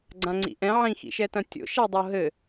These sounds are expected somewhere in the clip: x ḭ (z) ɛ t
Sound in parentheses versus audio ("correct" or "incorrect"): incorrect